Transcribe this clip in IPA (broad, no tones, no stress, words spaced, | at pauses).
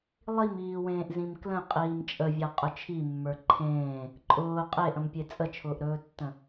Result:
lˠimiːwẽːʔ zĩmklə̃ qʼiːmt͡ʃʼəvʲa qʼʊt͡ʃʰimːə˞ ǃʰẽː | ǃʼʊː qʼeʔə̃mpʲe t͡sʼət͡ʃʰʊːʔɾɵːtːə̃